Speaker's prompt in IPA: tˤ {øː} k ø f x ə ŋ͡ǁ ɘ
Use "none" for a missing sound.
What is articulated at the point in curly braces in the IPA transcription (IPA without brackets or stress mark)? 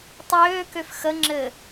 øː